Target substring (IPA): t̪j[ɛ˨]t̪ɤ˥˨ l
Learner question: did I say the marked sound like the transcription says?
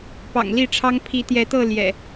no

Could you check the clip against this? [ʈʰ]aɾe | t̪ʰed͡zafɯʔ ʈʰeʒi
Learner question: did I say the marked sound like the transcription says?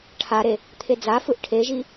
yes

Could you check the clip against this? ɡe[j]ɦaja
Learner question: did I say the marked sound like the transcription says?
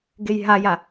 yes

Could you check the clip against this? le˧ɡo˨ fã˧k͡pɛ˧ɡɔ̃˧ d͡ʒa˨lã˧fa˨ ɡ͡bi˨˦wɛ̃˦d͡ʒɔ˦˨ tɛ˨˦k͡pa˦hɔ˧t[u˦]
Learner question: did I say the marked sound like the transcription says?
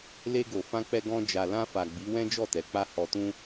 no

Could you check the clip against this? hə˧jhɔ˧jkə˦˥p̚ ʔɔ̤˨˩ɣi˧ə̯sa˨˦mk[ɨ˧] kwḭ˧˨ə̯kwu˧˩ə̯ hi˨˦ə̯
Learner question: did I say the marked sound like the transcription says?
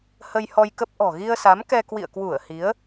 no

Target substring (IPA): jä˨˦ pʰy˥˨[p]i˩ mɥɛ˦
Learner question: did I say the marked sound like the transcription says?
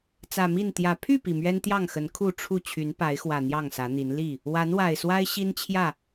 yes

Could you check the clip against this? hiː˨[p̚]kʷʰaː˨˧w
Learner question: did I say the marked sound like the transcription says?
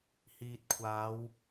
no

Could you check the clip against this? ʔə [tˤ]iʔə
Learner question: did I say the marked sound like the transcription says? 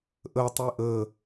yes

